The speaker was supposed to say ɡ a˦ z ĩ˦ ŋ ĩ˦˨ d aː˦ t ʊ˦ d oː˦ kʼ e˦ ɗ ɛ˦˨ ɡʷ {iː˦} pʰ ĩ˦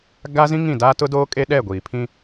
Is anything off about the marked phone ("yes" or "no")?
yes